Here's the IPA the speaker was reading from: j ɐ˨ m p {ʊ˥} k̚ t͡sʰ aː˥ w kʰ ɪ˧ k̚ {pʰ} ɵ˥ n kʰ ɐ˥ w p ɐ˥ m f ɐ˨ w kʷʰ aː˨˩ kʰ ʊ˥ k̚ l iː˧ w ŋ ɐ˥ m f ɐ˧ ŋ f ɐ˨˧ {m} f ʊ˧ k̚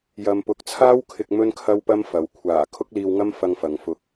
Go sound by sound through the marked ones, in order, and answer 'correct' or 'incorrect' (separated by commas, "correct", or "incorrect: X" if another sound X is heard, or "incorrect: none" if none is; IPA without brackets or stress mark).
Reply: incorrect: ʊ˨˥, incorrect: m, incorrect: ŋ